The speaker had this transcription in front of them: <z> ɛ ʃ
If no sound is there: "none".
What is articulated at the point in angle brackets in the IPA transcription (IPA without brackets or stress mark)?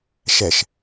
ʃ